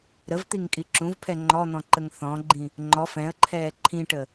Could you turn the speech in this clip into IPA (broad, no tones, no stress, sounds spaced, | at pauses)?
ɾ ə v t̪ i ŋ kʼ i ǁ ũ v pʰ ɛ ŋ͡ǃ ɔ n̪ ɔ̃ ǃ ə ŋ θ ɔ̃ ɡ͡ǃ ĩ | ŋ͡ǃ ɔ f ɛ̃ ə̯ ǃʰ ɛː ǃʰ ĩ ʈ ə